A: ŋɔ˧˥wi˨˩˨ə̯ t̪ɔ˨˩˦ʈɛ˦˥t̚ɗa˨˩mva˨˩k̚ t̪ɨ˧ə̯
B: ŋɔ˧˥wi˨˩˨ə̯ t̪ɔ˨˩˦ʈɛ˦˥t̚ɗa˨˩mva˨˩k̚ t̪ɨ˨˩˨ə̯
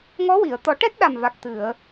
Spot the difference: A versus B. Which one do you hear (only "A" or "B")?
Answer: B